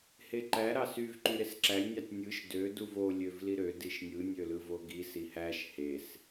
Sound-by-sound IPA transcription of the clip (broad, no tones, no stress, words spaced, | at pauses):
heǃæ ɾɑsyvǃy ɾesǁælʲnʲɑtʲ nʲɯʃ dø duvo lʲøvliɾø diʃnʲɯ nʲølɯvoɡi sihæʃ hes